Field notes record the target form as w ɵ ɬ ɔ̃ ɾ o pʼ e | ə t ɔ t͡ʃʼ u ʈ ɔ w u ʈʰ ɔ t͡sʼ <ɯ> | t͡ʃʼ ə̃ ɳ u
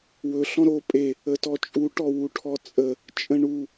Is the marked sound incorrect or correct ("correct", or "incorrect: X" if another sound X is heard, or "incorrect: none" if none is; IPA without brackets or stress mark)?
incorrect: ə